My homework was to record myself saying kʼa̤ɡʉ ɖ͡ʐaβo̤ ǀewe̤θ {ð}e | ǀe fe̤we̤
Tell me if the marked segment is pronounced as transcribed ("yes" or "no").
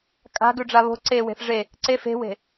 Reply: no